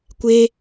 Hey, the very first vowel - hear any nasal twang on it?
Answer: no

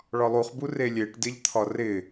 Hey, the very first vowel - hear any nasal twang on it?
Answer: no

